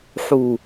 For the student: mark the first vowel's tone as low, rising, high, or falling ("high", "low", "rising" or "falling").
low